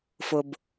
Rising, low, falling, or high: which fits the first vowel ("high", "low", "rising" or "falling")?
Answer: low